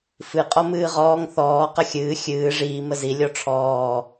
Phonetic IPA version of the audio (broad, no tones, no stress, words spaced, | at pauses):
fɨqʼɔ mɨːʁɔːŋ θɔː qəxʲɨː xʲɨː ʐiː məzi lʲɔʈ͡ʂʰɔː